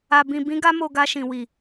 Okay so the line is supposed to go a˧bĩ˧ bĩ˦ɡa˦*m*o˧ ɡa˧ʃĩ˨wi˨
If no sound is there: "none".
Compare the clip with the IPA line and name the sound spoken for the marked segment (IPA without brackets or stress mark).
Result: m